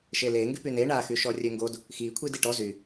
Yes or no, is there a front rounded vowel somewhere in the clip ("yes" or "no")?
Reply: yes